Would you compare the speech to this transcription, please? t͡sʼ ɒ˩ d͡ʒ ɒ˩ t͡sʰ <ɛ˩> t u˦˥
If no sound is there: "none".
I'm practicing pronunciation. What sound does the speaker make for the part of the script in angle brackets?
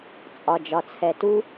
ɛ˩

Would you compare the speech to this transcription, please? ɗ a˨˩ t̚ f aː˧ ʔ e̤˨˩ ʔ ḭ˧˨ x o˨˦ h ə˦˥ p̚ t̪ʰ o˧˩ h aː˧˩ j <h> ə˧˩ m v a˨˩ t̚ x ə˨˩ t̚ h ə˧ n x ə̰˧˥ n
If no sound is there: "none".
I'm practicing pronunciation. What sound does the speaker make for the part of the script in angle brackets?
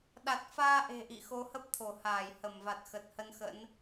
h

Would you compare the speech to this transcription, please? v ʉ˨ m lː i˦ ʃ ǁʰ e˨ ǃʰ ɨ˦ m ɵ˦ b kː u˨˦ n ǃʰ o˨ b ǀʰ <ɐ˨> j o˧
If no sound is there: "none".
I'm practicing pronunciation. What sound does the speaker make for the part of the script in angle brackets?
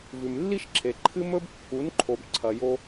ɐ˨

